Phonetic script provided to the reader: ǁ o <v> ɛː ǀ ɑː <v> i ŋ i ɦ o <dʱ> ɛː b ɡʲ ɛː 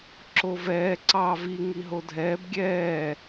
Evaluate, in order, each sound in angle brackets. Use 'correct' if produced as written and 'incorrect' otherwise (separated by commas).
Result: correct, correct, correct